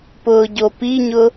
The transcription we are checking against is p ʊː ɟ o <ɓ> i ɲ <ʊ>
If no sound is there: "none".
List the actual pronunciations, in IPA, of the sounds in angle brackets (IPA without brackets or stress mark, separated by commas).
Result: p, ʊ